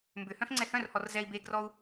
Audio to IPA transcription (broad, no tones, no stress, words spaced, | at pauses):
mbʏhœ̃f ŋ͡ǀɛhœ̃rhɔr zɛi̯ beɡrɔu̯